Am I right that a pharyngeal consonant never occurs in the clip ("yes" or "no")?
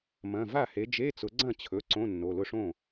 yes